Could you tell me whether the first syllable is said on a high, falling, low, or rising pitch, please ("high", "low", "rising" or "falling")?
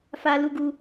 high